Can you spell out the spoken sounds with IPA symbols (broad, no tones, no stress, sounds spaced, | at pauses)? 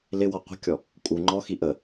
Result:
l ɪ w ɔ qʷ ə̤ kʲ ɔ | kʼ u ŋ͡ǃ ɔ x i ʔ ə